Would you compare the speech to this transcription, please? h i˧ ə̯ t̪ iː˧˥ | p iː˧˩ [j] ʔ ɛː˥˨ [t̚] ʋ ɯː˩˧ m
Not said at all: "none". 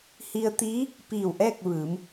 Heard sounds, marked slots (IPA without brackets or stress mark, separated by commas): w, k̚